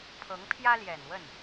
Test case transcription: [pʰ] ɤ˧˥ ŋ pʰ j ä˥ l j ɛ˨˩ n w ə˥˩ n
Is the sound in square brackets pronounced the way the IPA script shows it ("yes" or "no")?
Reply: yes